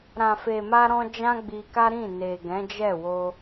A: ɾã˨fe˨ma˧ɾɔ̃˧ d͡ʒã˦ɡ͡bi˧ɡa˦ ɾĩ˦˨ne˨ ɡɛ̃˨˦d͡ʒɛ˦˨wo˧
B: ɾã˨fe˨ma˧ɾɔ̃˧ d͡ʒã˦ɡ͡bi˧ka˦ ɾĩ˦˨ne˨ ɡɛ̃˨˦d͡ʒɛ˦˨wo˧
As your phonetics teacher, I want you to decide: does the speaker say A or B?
B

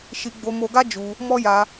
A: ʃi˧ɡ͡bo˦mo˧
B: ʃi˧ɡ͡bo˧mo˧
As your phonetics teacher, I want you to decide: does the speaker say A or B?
B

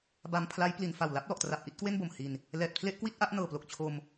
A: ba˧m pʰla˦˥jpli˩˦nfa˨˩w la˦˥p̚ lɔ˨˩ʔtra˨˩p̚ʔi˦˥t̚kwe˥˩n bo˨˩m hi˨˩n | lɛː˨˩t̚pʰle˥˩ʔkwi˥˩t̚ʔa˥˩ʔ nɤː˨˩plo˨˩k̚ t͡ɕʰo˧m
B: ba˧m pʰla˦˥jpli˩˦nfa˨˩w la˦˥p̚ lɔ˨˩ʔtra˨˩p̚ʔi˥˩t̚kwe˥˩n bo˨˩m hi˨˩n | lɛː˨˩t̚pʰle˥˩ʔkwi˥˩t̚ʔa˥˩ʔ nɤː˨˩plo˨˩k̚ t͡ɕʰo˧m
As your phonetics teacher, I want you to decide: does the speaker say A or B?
B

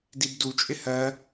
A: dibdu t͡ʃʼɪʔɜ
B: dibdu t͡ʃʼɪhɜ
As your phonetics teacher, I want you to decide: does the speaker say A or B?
B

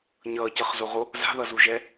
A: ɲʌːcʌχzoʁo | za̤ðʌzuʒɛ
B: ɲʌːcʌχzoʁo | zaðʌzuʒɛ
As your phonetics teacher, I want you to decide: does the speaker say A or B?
A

